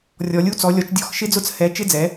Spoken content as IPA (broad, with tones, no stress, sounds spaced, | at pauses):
rʲ ɔ˩˧ lʲ u˧˥˧ t͡s ɔ˩˧ lʲ ɔ˩˧ t͡ʃ dʲ ɔ˧˥˧ x ʃ ɪ˧˥˧ d͡z ʊ˧˥˧ t͡s h ɛ˩˧ t͡ʃ ɪ˧˥˧ d͡z ɛ˩˧